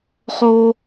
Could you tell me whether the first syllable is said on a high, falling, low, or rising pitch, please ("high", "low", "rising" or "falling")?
high